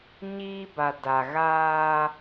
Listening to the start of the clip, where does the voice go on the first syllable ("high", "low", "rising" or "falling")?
high